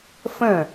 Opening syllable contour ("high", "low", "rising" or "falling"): falling